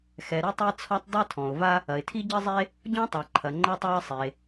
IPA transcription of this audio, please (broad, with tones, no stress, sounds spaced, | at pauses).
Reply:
x ɛ˩ ɾ ɨ˥ tˤ e˥ t͡sʰ ɔ˥ tˤ dˤ i˥ tʰ ɔ̃˩ ʊ̯ v a˥ | ɐ˩ ɪ̯ tʰ i˥ ɟ ɘ˥ zˤ e˥ | ɟ ɔ̃˥ tˤ a˩ ǃʰ ɐ˩ ŋ͡ǃ ɛ˥ tˤ a˥ ɪ̯ sˤ e˩